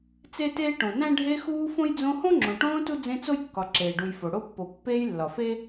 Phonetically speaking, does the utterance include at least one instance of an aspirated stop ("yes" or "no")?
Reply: no